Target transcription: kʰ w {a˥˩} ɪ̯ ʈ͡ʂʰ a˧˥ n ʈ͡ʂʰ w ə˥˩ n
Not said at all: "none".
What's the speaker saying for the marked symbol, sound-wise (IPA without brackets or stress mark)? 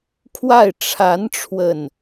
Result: a˥˩